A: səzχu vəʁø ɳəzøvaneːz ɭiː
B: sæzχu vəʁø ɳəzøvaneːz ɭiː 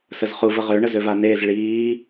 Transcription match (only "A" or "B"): A